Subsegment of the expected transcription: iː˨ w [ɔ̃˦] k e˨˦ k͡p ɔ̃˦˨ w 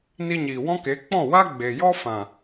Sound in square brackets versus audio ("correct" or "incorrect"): correct